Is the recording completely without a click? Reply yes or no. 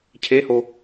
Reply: yes